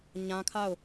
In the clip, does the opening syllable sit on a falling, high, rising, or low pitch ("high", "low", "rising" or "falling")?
high